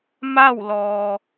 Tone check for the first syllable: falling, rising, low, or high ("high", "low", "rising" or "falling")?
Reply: falling